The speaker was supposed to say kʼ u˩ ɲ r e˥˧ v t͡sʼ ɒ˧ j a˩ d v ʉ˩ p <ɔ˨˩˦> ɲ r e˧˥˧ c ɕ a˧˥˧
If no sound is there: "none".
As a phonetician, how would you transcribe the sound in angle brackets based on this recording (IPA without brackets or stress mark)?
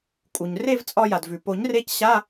o˨˩˦